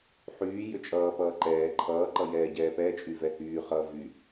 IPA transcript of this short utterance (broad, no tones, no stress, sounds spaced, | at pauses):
ħ yː j ʏ t͡ʃʼ ʌː p ʌː ǃ ɛː ǃʰ ʌː ǃ ʌ j ɛː ɟ ɛː p ɛ t͡ʃʼ y v ɛ h yː χ ʌː v y